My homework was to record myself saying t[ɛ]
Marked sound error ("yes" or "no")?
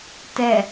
no